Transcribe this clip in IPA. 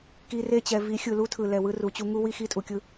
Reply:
ki˨re˦˨t͡ɕɛ˨ vi˨˦xʲɯ˨lu˦tʰɯ˨ lɛ˨wɯ˦ru˨t͡ɕu˦ ŋu˦wi˦ xi˦tʼu˨kʲɯ˦

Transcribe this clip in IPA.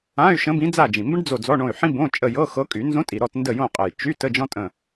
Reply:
ã˧˥˧y̯ ʃə̃˧˥bĩ˧˥ d͡za˦˨d͡ʒĩ˨˩mbə̃˥ɖ d͡zo˦˨d͡zɔ˧˥˧ɳõ˦˨y̯ ħĩ˥bõ˧˥˧ t͡ʃʼə˦˨jɤ˧˥˧xɤ˧˥kʼy˨˩˦ nzõ˧˥tʼi˨˩ɾɔ˦˨t ndə˦˨jõ˦˨qʼə˨˩j t͡ʃy˧˥˧t ə˧˥˧d͡ʒɔ̃˥tʼə̃˦˨

